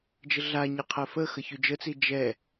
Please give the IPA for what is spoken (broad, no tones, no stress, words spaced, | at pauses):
d͡ʒəɮaɲe qʰɛfəxə çyd͡ʒət͡si d͡ʒɛ